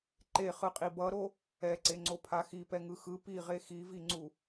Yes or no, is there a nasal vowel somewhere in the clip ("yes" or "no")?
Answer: no